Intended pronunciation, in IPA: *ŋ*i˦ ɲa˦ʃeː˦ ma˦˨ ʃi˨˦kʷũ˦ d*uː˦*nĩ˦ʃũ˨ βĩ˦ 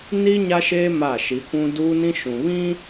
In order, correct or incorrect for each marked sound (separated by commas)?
incorrect, correct